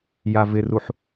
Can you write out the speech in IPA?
j a v ɪ r u ħ

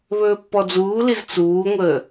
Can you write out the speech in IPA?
β ɵː pː ɔ d͡z uː l i z t͡s uː ŋʷ əː

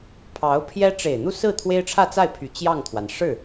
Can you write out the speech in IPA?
pʰ ɑ˧˥ ʊ̯ pʰ j ɛ˥ ʈ͡ʂ e˨˩ ɪ̯ n̪ u˥˧ s ɹ̩˥˩ t̪ʰ w e˥ ɪ̯ ʈ͡ʂʰ ä˥˧ t͡s a˥˩ ɪ̯ pʰ y˨˩ t͡ɕ j ɑ˥˩ ŋ t̪ʰ w a˩ n ʂ ɻ̩˥˩

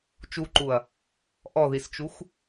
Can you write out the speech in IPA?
t͡ʃ u ǃ u ɐ̯ | ʔ ɔ ð i s t͡ʃ u x

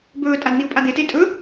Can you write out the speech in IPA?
b ɵː tʼ a d n̪ i ʊ̯ pʼ a d̪ e t e tʼ ɵ

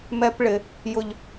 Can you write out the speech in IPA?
m ɛ˧ p ɭ ɪ˨ | j ʊ˨ ʎ

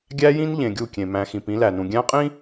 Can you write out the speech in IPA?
ɡʲ æ˦ j ĩ˦ n ʎ ẽ˨ ɡʲ u˦˨ kʲ ẽ˨ m æ̃˨ x ĩ˨ p ĩ˨˦ l æ˨ n ũ˨ ɡʲ æ̃˦ qʼ ĩ˦

